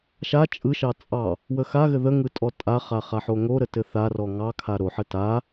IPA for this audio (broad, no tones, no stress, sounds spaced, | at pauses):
ʃ a t͡ʃʼ ɯ ʃ ɑ t͡sʼ ɑ | w ə x a ɣ ɘ ð ə ŋ ɯ tʼ ɔ tʼ a χ a χ a ħ o ŋ o ɾ ə t ɘ θ a r ɔ ŋ ɑ kʰ a ɾ o ħ ə t a